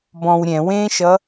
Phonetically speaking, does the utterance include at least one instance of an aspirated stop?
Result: no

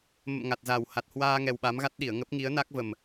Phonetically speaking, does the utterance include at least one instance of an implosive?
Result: yes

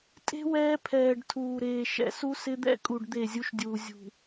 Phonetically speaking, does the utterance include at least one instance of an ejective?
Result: yes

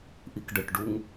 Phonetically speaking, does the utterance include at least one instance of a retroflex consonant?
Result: yes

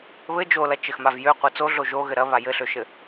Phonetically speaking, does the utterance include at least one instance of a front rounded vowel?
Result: yes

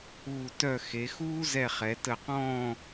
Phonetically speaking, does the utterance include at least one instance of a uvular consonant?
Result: yes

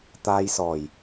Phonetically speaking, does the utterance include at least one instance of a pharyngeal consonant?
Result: no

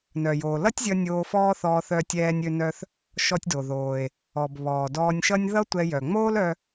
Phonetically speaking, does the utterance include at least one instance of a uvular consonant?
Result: no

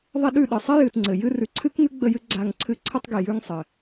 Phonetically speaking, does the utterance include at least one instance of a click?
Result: yes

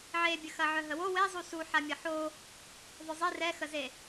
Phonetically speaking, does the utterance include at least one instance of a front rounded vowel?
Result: yes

